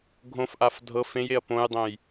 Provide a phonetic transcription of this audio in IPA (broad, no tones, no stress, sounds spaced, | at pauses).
ɡʱ õ f ʔ a f dʱ ɤ f ẽ j e ɐ̯ p õ j dˤ ẽ j